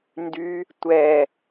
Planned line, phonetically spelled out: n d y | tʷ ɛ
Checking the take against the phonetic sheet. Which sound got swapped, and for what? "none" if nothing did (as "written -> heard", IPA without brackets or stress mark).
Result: none